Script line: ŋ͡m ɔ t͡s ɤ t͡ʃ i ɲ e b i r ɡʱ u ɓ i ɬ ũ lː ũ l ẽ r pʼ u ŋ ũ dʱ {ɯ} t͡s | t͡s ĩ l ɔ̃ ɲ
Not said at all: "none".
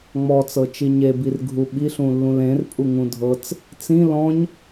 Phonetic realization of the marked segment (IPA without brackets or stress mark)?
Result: ɤ